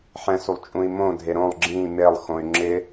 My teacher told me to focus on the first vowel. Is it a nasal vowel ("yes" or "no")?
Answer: yes